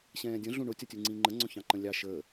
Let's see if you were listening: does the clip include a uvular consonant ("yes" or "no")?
no